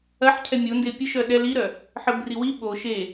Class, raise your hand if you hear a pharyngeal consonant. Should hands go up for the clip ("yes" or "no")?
yes